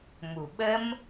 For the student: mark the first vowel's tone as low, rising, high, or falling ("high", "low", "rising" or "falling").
low